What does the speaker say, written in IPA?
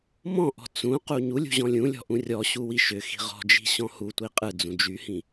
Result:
mɔ̃ʔɔ̤ t͡sũ quɲulʲṳ ʑɔ̃lʲũlʲɔ̤ ʔũrʲɔɕu wiʃʏxi̤ ʁɔ̤d͡ʒi̤ ɕɔ̃hutʷi qʼɯ d͡zũd͡ʒyhĩ

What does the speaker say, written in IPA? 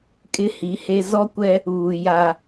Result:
kʼɪ˦hi˨˦he˦ zɔ˦kʷɛ˦ | uː˨ ja˦

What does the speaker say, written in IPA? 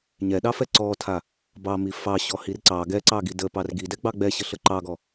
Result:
ɲɛɗɑfɛ ǀɔtʰa | bɑmi fɑɕɔhir ǀɑ ɡɛǀɑɡi dəpɑr ɡidɛɡ͡bɑ ɡ͡bɛɕəɬə ǃɑɡɔ

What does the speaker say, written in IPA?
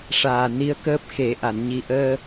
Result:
ʂaː˨˩ ni˧˥ə̯kəː˦˥p̚ xe˨˩˦ʔa˨˩˨n ɲi˨˩ʔəː˧

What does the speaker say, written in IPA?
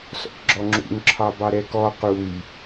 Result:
sɔ̰kɡ͡ǁɔŋ͡ǁṵŋ ǁʰɑbɑɾɛkɔ quj

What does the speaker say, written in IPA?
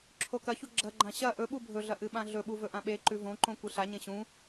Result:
ǁʰokɐçu ɡ͡ǁɐɡ͡ǃã ɕɐ ʔɵɓu bʱɵɮɐ ʔɨɓãɮɵɓu vɵʔãɓeǃʉ võǃõ kʷɨɬaɲẽ ɕũ

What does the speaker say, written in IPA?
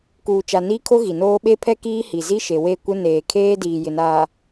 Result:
kuː˨t͡ʃa˨ niː˦kʰo˦ ɣi˨noː˦ ɓe˦pʰɛ˦ kiː˦hi˨ zi˦ʃe˨we˦˨kʷɪ˦ neː˨kʰeː˦ diː˨jɪ˨naː˨

